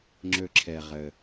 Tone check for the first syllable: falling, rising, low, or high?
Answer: low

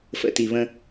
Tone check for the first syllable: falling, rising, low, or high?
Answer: low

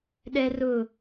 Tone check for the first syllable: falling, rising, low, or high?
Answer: high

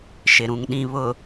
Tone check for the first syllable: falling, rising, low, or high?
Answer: low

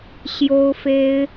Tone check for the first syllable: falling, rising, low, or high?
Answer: high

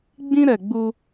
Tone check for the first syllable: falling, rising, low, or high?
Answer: high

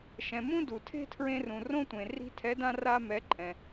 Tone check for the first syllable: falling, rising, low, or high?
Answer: low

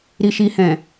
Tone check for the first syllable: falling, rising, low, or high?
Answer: low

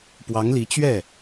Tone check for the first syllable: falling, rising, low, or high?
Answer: rising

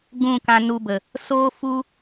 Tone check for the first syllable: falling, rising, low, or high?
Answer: falling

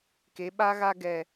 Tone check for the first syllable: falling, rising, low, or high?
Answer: rising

